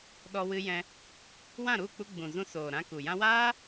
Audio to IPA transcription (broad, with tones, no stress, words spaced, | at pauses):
ɗɔ˧wɨ˧ jɛ̃˧ | wã˦˨ɾu˦˨k͡pu˧ ɡ͡bũ˨zũ˧ soː˨ɾã˧ku˨ jã˧waː˦